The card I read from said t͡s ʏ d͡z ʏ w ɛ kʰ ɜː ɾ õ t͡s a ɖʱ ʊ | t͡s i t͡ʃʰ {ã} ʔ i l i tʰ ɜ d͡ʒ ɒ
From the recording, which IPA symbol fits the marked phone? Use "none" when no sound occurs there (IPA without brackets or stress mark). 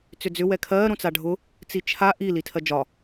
a